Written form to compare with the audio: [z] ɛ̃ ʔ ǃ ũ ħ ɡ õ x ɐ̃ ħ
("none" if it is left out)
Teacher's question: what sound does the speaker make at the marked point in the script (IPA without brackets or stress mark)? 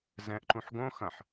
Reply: z